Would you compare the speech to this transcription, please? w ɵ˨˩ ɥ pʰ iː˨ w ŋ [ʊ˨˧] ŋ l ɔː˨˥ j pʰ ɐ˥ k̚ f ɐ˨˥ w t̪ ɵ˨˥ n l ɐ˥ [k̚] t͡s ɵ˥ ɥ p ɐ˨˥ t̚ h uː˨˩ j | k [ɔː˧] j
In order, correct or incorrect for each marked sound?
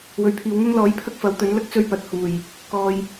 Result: incorrect, correct, correct

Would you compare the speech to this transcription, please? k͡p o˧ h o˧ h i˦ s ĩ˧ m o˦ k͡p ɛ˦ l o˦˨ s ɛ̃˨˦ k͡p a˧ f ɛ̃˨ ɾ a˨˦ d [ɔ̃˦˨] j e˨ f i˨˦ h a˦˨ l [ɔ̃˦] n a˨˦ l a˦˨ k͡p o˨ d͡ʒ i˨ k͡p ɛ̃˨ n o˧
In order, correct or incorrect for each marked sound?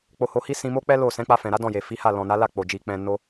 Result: correct, incorrect

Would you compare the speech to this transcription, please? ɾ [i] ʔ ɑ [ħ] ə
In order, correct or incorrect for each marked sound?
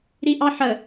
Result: correct, correct

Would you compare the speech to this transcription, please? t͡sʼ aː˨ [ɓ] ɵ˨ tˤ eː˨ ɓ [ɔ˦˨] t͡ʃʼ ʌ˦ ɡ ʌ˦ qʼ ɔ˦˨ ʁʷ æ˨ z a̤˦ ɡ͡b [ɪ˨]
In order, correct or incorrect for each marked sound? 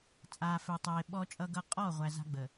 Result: incorrect, incorrect, incorrect

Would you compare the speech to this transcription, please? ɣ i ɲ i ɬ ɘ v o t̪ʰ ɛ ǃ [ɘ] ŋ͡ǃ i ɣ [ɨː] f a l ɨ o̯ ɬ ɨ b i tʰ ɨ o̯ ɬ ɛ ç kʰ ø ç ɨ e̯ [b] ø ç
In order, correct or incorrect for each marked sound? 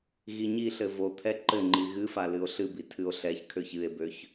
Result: correct, incorrect, correct

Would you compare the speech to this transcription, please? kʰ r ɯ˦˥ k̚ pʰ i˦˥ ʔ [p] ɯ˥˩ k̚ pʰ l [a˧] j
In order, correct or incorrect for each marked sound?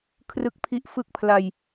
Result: incorrect, correct

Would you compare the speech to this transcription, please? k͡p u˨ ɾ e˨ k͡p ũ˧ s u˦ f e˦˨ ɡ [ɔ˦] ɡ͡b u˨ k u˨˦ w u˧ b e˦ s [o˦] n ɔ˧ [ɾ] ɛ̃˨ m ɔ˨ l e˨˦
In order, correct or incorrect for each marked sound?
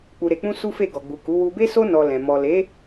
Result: incorrect, correct, incorrect

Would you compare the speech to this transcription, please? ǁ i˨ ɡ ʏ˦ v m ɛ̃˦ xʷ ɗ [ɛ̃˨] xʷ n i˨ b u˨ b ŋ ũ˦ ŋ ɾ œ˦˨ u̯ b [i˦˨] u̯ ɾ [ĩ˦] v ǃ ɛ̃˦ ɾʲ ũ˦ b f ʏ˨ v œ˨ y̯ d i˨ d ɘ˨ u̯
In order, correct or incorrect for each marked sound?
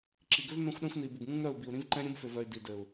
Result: incorrect, incorrect, correct

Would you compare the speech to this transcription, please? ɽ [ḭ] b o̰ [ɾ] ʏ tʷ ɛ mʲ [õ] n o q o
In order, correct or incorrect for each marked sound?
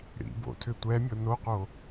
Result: correct, incorrect, incorrect

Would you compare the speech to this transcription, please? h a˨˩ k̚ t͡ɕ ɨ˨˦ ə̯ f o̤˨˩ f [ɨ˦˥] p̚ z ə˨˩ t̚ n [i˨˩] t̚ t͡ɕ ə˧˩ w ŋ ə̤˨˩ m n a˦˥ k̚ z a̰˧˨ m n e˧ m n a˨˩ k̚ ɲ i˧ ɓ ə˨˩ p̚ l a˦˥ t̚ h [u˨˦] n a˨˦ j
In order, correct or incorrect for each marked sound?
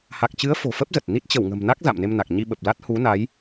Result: incorrect, incorrect, correct

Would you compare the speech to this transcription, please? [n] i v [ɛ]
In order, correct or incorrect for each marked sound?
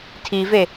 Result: incorrect, incorrect

